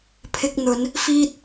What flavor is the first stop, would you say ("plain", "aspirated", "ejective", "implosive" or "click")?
aspirated